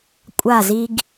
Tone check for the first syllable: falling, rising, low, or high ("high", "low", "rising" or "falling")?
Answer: falling